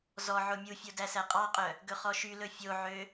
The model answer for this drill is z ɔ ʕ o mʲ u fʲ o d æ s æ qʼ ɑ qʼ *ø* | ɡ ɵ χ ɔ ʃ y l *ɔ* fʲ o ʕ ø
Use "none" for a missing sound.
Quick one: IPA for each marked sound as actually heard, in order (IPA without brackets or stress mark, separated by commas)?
œ, ɵ